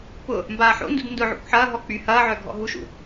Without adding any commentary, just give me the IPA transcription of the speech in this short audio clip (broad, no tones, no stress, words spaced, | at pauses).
pʊ | mbaːħo̰ ndṵdndʊʕo̰kʷ ħɐːɦɔ k͡py hɐːʕœ ɡʱɔ̰ɦuʃṵ